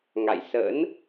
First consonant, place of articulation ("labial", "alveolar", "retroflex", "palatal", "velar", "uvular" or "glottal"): velar